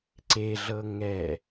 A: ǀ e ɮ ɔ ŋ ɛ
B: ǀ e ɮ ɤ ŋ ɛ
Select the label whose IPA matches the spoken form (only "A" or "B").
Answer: B